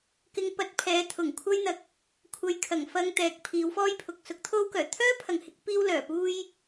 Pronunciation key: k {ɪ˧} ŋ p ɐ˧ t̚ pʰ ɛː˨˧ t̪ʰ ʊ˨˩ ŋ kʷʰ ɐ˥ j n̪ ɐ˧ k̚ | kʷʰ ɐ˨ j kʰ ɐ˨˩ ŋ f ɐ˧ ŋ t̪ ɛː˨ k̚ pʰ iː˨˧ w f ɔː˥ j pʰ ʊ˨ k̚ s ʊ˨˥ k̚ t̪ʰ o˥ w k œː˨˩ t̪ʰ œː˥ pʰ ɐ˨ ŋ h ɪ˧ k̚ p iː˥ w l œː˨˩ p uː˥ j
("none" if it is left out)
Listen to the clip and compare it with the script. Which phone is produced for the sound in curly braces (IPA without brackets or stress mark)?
ɪ˧